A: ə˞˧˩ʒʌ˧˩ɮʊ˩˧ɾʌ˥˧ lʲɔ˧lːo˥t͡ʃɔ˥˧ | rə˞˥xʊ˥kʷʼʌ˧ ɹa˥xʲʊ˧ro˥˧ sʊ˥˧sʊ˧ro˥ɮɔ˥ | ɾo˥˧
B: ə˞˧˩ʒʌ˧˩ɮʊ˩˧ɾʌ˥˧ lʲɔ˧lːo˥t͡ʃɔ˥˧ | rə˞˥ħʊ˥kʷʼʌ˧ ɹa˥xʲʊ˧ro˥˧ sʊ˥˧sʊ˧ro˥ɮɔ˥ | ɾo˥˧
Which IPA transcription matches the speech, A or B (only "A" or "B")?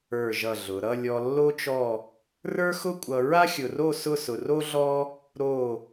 A